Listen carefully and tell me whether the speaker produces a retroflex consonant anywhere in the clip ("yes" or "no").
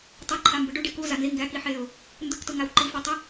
yes